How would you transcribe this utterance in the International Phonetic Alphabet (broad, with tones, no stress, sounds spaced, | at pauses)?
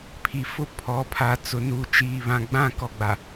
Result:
pʰ i˨ f ʊ˦˨ pʰ ɔ˨ pʰ a˨ t͡s ʊ˨ n uː˨ t͡ʃ iː˨ β ã˨ ɡ͡b ã˦˨ k ɔ˨ ɡ͡b a˨